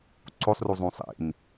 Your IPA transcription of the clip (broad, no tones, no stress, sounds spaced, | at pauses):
ǀ o sˤ r u zˤ ũ sˤ ḭ n